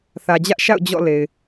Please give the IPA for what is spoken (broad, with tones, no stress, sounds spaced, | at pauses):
θ ä˨ d͡ʑ ä˦ ʔ ʃ a̰˦˨ ʊ̯ d͡ʑ ɔ̰˦˨ l e˨ ɪ̯